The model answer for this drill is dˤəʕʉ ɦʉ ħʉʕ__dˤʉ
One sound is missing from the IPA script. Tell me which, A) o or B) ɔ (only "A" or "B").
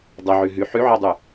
B